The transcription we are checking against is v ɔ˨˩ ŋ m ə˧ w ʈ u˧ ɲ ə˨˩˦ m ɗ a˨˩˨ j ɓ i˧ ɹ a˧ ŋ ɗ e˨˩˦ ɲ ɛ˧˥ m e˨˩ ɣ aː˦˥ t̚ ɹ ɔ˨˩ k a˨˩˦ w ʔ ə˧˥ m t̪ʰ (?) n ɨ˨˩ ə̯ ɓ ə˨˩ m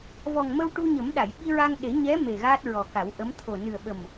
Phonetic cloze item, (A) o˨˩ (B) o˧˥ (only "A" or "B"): A